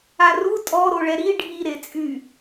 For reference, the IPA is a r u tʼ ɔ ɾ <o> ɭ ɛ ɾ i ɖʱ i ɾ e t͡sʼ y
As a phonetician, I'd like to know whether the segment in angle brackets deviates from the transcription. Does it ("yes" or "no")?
no